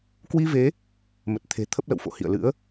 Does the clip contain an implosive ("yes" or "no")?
no